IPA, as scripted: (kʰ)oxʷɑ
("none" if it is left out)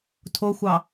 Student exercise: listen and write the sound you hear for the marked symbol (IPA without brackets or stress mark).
tʰ